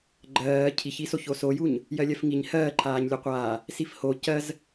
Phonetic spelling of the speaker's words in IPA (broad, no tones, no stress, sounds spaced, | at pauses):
ɡ͡ǃ ɜː cʰ i ç i s o ç o s o j u ɲ | j ɜ lʲ ɜ f ŋ i ɲ h ɜː ǃʰ aː ɲ lʲ o qʷ aː | s i f h o c ɜ z